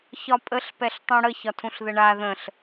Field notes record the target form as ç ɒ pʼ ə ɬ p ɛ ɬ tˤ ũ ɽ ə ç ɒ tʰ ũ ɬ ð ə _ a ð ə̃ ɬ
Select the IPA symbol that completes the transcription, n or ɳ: ɳ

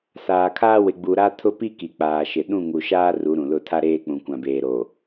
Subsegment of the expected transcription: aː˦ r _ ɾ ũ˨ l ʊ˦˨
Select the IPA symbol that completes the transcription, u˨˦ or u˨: u˨˦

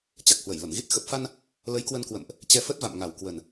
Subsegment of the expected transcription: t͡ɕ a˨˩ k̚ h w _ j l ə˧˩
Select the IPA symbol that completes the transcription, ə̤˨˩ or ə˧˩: ə˧˩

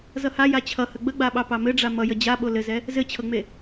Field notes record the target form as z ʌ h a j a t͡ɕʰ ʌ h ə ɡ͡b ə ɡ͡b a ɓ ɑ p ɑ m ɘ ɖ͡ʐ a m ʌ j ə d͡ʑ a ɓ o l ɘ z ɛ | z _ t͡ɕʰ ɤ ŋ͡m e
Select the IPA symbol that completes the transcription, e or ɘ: ɘ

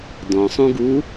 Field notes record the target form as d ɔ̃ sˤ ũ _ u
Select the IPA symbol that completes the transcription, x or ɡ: ɡ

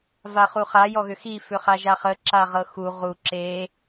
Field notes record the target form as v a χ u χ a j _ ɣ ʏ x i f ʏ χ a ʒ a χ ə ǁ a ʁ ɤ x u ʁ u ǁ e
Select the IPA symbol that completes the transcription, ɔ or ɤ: ɔ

